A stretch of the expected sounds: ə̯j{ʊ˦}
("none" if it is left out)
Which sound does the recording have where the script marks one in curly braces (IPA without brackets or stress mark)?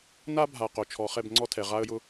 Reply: ʊ˦